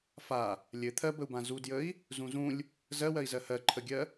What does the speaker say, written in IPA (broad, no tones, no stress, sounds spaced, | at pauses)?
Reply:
f a | lʲ ɘ t̪ʰ ɜ b ə u̯ b ã z u d j ə i̯ | z ũ z ũ lʲ | z ɜ w ɜ i̯ z ɜ h ɜ ǃʰ ə ɡʲ ɜ